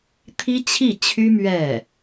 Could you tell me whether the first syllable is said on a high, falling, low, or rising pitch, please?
high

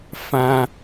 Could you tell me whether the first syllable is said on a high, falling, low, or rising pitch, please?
high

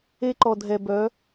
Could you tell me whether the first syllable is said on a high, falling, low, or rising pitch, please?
high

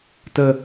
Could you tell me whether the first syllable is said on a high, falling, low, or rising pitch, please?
high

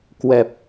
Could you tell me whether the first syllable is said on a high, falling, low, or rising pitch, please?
low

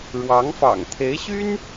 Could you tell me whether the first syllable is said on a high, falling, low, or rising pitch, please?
rising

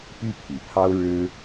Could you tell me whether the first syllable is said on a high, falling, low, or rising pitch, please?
high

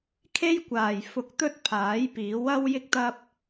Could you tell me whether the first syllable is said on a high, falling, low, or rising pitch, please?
high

